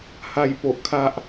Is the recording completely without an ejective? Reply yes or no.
yes